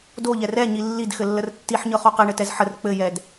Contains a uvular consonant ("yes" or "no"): yes